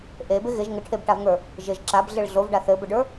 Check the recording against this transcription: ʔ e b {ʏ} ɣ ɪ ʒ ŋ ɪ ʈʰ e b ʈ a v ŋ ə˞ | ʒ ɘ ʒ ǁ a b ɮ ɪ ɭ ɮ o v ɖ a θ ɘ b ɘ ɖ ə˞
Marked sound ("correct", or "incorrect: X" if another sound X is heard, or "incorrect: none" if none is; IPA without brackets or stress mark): incorrect: ɪ